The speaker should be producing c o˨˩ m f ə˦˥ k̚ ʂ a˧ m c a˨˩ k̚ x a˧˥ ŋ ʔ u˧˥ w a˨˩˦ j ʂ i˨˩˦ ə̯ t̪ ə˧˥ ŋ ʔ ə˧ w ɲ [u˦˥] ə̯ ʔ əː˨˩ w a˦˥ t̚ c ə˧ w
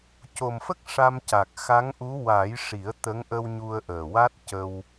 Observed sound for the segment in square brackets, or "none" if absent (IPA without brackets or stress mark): u˧